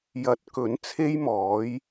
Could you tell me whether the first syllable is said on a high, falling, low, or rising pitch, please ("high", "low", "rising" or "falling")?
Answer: rising